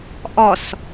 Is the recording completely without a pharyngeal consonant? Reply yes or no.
yes